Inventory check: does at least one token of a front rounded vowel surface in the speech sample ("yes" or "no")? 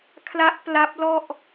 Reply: no